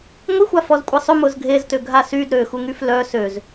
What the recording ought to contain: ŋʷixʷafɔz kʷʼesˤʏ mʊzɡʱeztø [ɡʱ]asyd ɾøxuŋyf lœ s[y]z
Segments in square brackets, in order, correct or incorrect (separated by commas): correct, incorrect